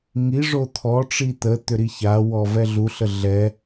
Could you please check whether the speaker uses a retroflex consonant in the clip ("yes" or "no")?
yes